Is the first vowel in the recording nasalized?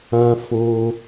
yes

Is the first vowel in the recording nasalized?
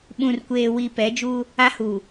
yes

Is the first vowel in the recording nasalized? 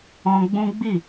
yes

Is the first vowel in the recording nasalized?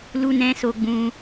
no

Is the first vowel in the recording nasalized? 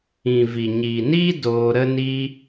yes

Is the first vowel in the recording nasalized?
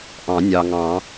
yes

